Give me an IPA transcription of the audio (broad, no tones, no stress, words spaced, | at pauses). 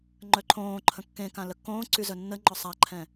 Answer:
ŋ͡ǃœǃʰõːǃʰə̃ kːẽkã ləkːõːǀy zœnːəŋ͡ǃɔ sˤaǃʰɛ̃